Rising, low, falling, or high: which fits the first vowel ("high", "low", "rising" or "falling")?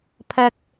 high